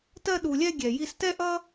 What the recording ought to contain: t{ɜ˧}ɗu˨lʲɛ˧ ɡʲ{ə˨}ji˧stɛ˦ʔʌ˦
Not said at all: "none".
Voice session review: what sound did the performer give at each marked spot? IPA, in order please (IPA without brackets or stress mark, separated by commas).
ɜ˧, ɛ˨